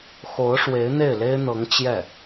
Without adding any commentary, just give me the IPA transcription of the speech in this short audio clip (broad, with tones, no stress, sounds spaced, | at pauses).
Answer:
x o˧˥ ʊ̯ ʂ w e˧˥ ɪ̯ n̪ e˥˩ ɪ̯ l e˥ ɪ̯ n̪ ɤ˧˥ ŋ t͡ɕ j ɛ˥˩